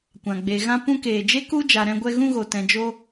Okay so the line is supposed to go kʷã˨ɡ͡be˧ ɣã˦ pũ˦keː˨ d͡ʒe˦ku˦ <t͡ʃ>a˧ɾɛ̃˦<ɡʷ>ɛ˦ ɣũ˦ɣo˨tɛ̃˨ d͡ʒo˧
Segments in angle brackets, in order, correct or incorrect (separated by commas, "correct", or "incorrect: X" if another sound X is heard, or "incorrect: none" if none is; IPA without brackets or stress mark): incorrect: d͡ʒ, correct